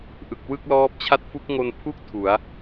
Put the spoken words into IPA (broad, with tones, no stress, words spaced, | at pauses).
ʔɯ˨˩k̚wɯ˥˩k̚lɔː˦˥p̚t͡ɕʰa˥˩t̚ fu˦˥k̚ŋo˧npʰu˥˩k̚ tʰu˩˦a̯